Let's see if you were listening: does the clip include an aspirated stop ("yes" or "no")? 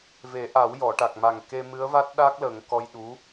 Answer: no